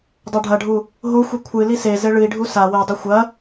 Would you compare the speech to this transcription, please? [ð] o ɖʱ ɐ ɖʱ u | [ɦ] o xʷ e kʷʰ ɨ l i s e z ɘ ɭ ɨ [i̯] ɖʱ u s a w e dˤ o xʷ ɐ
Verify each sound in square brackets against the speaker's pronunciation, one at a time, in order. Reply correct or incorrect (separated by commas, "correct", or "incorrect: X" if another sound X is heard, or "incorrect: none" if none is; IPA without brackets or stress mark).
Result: incorrect: dˤ, correct, correct